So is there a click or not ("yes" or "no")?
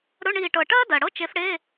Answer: no